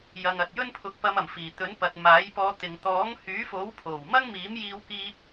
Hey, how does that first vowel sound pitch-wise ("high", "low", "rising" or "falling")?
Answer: low